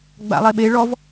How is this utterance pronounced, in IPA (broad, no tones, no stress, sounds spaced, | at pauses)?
ɡ͡b a̰ lˠ e ɓ e ɭ ɔ v